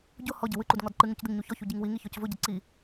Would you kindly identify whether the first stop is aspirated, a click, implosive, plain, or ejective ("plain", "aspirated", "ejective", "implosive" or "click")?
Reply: plain